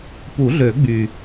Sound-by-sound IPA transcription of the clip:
p u˨˩˦ ɮ ø˨˩˦ ɡ͡b y˨˩

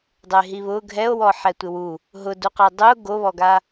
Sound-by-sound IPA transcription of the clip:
dˤ e ɦ i β ʊ ɡʱ ɛ o̯ w ɔ ħ ɛ tʷ ɪ w u | ɦ ʊ d u q ɛ dˤ ʊ ɡ o β ɔ ɡ a

